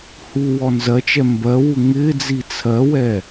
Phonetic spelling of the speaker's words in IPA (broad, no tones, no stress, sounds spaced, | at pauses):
h u w ɔ n z ɜ t͡ʃ ɛ m b ɜ w u ŋ ɪ d͡z i t͡sʰ ɜ w ɛ